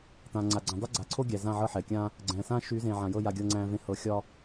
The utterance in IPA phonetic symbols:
tãː˨ ŋ͡ǀa˨ɡ͡ǀæ̃˨ dˤe˦ɡ͡ǀa˨ǀʰo˦ ɡʲæ˨zã˦˨ ʕɤ˦˨ħɛː˨kʲãː˦ | ɡ͡ǀɛ̃ː˨sãː˦ ʃyː˨˦zẽː˨ʕã˨jɤ˦˨ ja˦ɡʲɤ˦ ŋ͡ǀæ̃ː˦vẽ˦ hɤ˦ xʲɒ˦

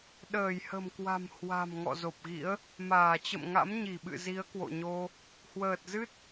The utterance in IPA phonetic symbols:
ɗəː˧˩jhə̤˨˩mkwa̤˨˩m hwa̤˨˩m ŋɔ̰˧˨zo˨˩p̚ɣḭ˧˥ə̯ | maː˧˩ t͡ɕə̰˧˨mŋa̰˧˥mɲi˧˩ɓɨ̰˧˨ zi˨˦ə̯kwo̰˧˨ɲo˧ | hwəː˨˩t̚zɨ˦˥t̚

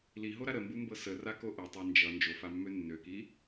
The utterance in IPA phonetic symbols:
liɦoɾa ɾəmbumbɤ sərako ʔʌtˤa nd͡ʒʌ nd͡ʒofamːø nːøki

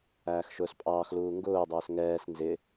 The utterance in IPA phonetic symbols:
æːxʃʊːspʼɑːxluː ŋɡʊːdˤəːs ŋɛːs nzɪ

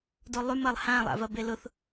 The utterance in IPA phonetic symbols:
dolˠymɐlˠ hãlˠa̰vɐ belʊθ

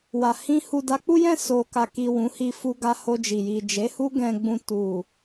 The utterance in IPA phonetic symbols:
wa˨hĩ˧ hu˨da˨˦k͡pu˦jɛ̃˦˨ so˨ ka˨ki˨ wũ˨˦hi˧ fu˧ɡa˧ ho˧d͡ʒi˨ ji˨d͡ʒe˨˦ hu˦ɡɛ̃˧ ɡ͡bũ˧ tu˨

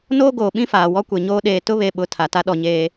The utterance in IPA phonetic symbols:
noː˦ɡoː˨ɓĩ˦faː˨ wɔ˦kʷe˨ɲoː˦ ɗeː˨tʊ˦βe˨ɓʊ˨ tʰa˨ta˦ɗɔ˨ɲeː˦

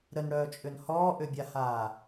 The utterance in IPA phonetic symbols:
ɾənɽœːt͡ʃʼʏn hɔːʔʏbʲahaː

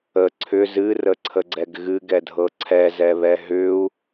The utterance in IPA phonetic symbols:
ə ǀʰʏ zɨrəǀʰəɡ͡ǀɛɡ ɣɨɡɛdʱɤ ǀʰɛzɛβɛ ɦʏu̯

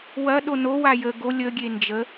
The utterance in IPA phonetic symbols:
wɐ ɗono wajə ɡo lʲə ɡʲend͡ʒə

